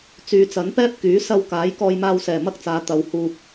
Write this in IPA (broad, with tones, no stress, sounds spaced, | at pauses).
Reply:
t͡s yː˨˧ t͡s ɐ˨˥ n p ɛː˥ p̚ k yː˨˥ s ɐ˧ w k aː˨˥ j k ɔː˧ j m aː˧ w s ɛː˨˩ m ɐ˥ k̚ t͡s aː˨˧ t̪ ɐ˨ w h uː˨ p̚